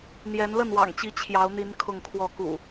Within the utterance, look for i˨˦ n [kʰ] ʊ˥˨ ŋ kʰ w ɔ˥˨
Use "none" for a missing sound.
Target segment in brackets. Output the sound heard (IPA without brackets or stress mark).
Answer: kʰ